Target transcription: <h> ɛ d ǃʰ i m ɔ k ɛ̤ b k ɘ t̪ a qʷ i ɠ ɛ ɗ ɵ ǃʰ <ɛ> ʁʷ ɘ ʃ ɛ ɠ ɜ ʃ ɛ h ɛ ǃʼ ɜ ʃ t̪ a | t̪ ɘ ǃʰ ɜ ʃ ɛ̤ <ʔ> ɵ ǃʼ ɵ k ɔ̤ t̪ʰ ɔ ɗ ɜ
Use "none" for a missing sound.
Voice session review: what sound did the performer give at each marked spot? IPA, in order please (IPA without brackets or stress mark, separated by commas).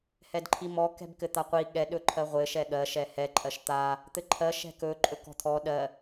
h, ɜ, k